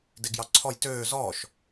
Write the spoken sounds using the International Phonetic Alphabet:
d e ɡ j ɑ ǀʰ ɔ j t øː z ɔː ʃ

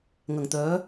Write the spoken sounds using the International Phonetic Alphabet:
ŋ ɐ˨˩ ŋ t̪ œː˨˥

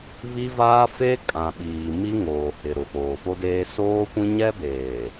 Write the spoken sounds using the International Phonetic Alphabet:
β i˦ v aː˦ f e˦ kʼ ã˨ ɓ iː˨ m i˦ ŋ oː˨ h ɪ˨ ɾ ʊ˨ p oː˨ f o˦ d eː˦ s oː˦ kʷ ĩ˦ ɲ ɛ˦ b eː˨

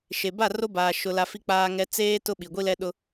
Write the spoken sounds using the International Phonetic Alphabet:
ʃ e˨ b a˦˨ r o˦ b aː˨ ʃ ʊ˨ l a˨ f i˦ k͡p aː˦ ŋ ɛ˦ t͡s eː˦ t ʊ˦ ɓ i˨ ɡʷ i˦ l ɛ˦ ɗ ʊ˦

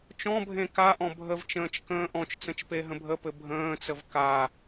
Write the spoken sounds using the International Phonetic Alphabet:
t͡ʃ ɔ̃ bʱ ẽ k a ʔ ɔ̃ bʱ ə v t͡ʃ ə̃ː t͡ʃ k ə̃ː ʔ ɔ̃ t͡ʃ t͡s ə̃ t͡ʃ p e ɦ ə̃ bʱ ə p ɘ bʱ ə̃ː t͡s ə v k a

